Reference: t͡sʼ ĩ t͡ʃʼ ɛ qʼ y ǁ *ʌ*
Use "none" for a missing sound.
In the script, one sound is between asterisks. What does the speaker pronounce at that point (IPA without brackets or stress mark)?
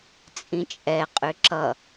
ʌ